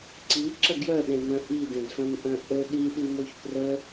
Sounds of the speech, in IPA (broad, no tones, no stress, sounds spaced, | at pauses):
ǀ i ǁ ɐ ɡ j œ ɗ ẽ m œ̃ ʔ i d ẽ d f œ̃ m ʔ œ̃ ʔ ɵ ɗ i ɗ i m o ç p r ə